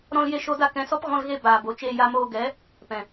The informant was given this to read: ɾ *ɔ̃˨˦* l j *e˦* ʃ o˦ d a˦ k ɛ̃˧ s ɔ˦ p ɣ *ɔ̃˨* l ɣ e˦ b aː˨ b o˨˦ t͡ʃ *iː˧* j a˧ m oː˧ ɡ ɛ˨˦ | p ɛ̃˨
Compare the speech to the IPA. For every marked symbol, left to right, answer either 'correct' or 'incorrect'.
incorrect, correct, incorrect, incorrect

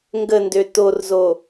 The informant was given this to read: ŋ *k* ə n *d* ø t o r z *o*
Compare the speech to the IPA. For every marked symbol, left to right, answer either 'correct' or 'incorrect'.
incorrect, correct, correct

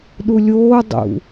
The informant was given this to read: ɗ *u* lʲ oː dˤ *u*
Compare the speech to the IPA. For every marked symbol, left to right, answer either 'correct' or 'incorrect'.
correct, incorrect

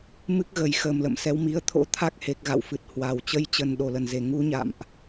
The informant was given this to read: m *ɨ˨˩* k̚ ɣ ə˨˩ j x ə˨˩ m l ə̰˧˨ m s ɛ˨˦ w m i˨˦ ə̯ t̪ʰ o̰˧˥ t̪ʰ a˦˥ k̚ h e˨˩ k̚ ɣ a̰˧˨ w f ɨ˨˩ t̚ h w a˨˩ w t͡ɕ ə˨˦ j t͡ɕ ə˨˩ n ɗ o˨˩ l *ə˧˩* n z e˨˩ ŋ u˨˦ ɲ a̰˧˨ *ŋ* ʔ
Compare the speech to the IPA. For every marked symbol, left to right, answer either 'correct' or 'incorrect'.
incorrect, correct, incorrect

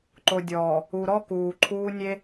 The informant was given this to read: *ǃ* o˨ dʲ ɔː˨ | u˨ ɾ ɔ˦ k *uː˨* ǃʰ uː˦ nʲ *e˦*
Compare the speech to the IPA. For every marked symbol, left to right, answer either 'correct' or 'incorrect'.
correct, correct, correct

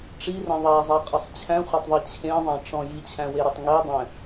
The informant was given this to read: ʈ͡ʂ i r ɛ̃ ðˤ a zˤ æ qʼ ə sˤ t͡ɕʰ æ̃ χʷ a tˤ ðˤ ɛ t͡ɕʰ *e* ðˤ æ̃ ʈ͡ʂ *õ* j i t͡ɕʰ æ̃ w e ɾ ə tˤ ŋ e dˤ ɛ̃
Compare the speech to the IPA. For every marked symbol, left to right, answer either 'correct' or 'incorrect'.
incorrect, incorrect

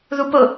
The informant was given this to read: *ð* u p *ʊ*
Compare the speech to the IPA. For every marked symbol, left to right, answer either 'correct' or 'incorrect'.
correct, correct

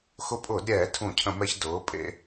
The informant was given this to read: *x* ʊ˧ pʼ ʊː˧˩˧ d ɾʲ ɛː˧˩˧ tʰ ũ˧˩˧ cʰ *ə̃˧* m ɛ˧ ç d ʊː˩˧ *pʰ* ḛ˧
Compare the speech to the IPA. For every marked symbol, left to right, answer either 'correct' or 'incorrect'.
correct, incorrect, incorrect

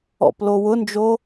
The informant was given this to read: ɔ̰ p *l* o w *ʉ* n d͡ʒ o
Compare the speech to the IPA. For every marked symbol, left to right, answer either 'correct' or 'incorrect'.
correct, incorrect

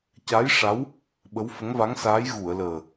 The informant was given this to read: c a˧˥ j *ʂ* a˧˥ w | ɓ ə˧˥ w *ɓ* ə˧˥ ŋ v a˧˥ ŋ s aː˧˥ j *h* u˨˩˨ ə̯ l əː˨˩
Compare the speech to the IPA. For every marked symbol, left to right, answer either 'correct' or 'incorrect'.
correct, incorrect, incorrect

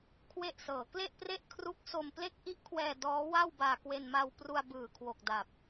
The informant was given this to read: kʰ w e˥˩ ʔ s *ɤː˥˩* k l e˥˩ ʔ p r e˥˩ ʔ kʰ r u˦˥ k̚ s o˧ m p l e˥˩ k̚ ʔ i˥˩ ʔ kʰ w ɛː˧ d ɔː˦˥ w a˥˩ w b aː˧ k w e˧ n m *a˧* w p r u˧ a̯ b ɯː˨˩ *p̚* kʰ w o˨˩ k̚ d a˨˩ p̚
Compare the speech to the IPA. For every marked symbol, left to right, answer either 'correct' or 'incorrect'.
incorrect, correct, incorrect

